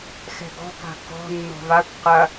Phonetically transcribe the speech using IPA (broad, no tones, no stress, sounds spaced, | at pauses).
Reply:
x ɛ̤ ɡ ɔ̤ k a̤ k ɔ̤ nː ɔ̤ v a kʷ q ɐ